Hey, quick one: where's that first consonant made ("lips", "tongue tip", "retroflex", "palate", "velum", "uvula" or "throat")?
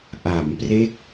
throat